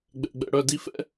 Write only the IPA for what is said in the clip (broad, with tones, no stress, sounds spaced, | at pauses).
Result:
ɡ͡b ɛ̰˧˥˧ ɡ͡b ɛ̰˧˥˧ ɽ œ˧˥˧ d i˥ f ɛ̰˥